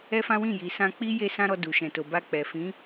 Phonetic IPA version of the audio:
ɛ˦ f ã˦ w ĩ˦˨ j i˨ s ã˧ k͡p i˦ j e˦ s ã˦ ɾ ɔ˧ d u˨ ʃ ɛ̃˨ t o˨ b a˧ k͡p ɛ˨ f ĩ˨˦

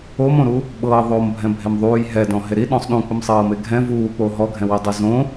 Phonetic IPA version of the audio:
o m õ ɾ u | ɓ ɤː ðˤ oː m bʱ ɛ̃ bʱ e m ðˤ uː j ɦ ɛ d ɔ̃ ɦ e ɾ i ɗ ɔ̃ sˤ ɗ ũ k͡p ɯ m sˤ ɤː m e ɡʱ ɛ̃ v uː k͡p oː ɦ ɔ ɡʱ ɛ̃ w i dˤ ɛ z õ

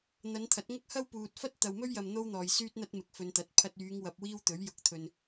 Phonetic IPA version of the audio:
n̪ ɐ˨˧ n t̪ʰ ɐ˨˥ t̚ ŋ ɐ˥ k̚ h ɐ˥ w p uː˨ t̚ f ɐ˥ t̚ t̪ ɐ˨ w m ɵ˥ ɥ j ɐ˨ m n̪ o˥ w n̪ ɔː˨ j s yː˥ t̚ n̪ ɐ˥ t̚ m ɪ˨ k̚ f ɵ˨˧ n t̪ ɐ˨˥ t̚ pʰ ɐ˧ t̚ yː˨˧ ŋ w ɐ˧ p̚ w iː˥ w t̪ ɵ˨˥ ɥ j ʊ˨ k̚ t̪ʰ ɵ˨ n

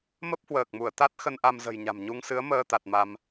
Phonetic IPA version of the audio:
m ə˦˥ p̚ h w əː˨˩ k̚ m u˧˩ ə̯ t̪ a˦˥ t̚ x ə˧ n ʔ a˧ m z ə̤˨˩ j ɲ a̤˨˩ m ɲ u˧ ŋ s ɨ˨˦ ə̯ m əː˧ t̪ a˨˩ t̚ m a˧ m

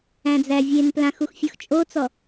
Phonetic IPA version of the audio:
æ̃ d͡z æ vʲ e n p l ã x u x fʲ ɔ x t͡ʃʼ o t͡s ɔ

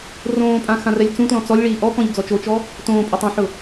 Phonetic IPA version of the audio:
r õː pʼ ã x ã r ɛ lʲ t͡s ũ t l ɔ̃ t͡s ɔ lʲ ɭ iː ʔ ɔ k ɔ̃ ʎ d͡z ɔ t͡ʃ o t͡ʃ ɔ | t õː pʼ ɪ tˤ ẽ ħ ʊ

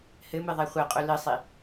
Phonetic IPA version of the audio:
h ɘ m ɨ ðˤ ɛ χʷ ɛ qʼ u l ɨ sˤ i

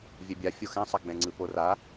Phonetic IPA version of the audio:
vʲ ɛ bʲ a fʲ o x ɛ̃ sˤ a ɡ͡b ɛ̃ ŋ͡ǀ ɯ p o r a

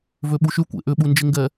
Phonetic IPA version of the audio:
v ø ɓ u ʃ y kʷ ḛ ʔ ʏ ɓ u n d͡ʒ ɪ ŋ ɡ ɛ

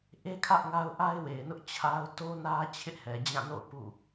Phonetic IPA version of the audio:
ʔ e˦ kʰ ä˦ ʔ ŋ a˦ ʊ̯ ʔ a˦ ɪ̯ w e˨ ɪ̯ n ʊ˦ ʔ t͡ɕʰ a˦ ʊ̯ t o˦ n ä˦ t͡ɕʰ ɪ˦ ʔ h ɛ˨ d͡ʑ ã˦˨ n o̰˦˨ ʊ̯ p ṵ˦˨

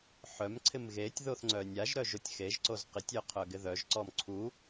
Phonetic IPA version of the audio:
ħ œ m ǀʰ ɪ m ɣ e tʲ ð o θ ŋ͡ǀ œ nʲ a ʒ ɾ œ ʒ o tʲ x e ʒ ǀ o z q ɪ tʲ œ qʰ œ ɡ ɪ ð œ ʒ ǀ ɔ m ǀʰ u

